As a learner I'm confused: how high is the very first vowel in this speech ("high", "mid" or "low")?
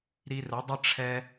high